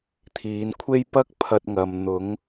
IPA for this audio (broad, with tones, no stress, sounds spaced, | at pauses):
t̪ʰ iː˨˧ n kʷʰ e˥ j p ɐ˥ k̚ pʰ ɐ˧ t̚ ŋ ɐ˨ m n̪ ʊ˨˥ ŋ